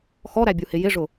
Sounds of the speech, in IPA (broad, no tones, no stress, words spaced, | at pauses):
xɔɾæbʲuhɪ jɪʐʊ